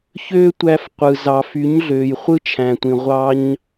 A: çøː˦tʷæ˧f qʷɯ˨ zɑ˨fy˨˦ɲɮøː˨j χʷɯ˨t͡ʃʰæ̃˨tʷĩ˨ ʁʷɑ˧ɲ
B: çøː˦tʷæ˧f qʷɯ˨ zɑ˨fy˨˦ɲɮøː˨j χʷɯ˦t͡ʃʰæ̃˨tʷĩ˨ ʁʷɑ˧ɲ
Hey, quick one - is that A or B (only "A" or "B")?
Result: B